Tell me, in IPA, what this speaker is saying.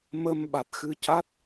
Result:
m ə˧ m ɓ a˨˩ t̚ x ɨ˧ c a˦˥ t̚

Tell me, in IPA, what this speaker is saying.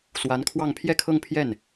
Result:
s w a˧˥ n kʰ w ɑ˥˧ ŋ pʰ j ɛ˥˧ kʰ ɤ˥˧ ŋ pʰ j ɛ˥˩ n

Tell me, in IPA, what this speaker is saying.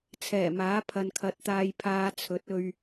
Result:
t͡sʰ ɛː˨˩ m aː˨˥ pʰ ɐ˨ n kʰ ɐ˨˥ t̚ t̪ aː˧ j pʰ aː˧ t͡sʰ ɵ˨˥ t̚ ɵ˧ ɥ

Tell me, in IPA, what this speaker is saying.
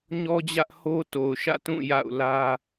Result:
ɲ ɔ˦ d͡ʑ ä˦ ʔ h o˦ t o˨ ʊ̯ ʃ ä̰˦˨ t ũ˦˨ j a̰˦˨ ʊ̯ l ä˦

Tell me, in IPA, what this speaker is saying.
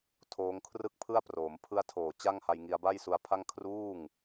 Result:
tʰ oː˦˥ ŋ kʰ r ɯ˥˩ k̚ pʰ ɯ˥˩ a̯ p r oː˩˦ m pʰ ɯ˧ a̯ tʰ oː˨˩ t͡ɕ a˥˩ ŋ h a˧ j ŋ i˧ a̯ b a˥˩ j s u˧ a̯ pʰ a˥˩ ŋ kʰ r uː˥˩ ŋ

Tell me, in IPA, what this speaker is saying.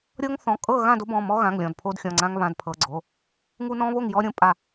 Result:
ɾʲ ɤ˦ ŋ θ ɔ̃˩˧˩ kʼ ɤ˥˨ ɣ ã˥˨ d o˦ b ɔ̃˩˧˩ m ɔ˦ ɣ ã˩˧˩ ŋ lʲ ɔ̃˩˧˩ d pʰ o˦ d xʲ ɔ̃˩˧˩ ŋ͡ǀ ã˦ ŋ β ã˩˧˩ d pʰ ɤ˩˧˩ ɡ͡ǀ o˩˧˩ | ŋ u˦ n ɔ̃˦ β o˥˨ ŋ j ɔ˦ ɾʲ õ˦ pʼ a˥˨

